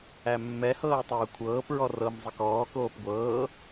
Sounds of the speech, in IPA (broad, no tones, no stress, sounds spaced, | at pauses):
æ mː ɛ h ɤː tˤ ɤː kʷʰ ɤː p ɹ ɔ r ɤ m zˤ ə k ɔː k oː p ɡʷ ɤː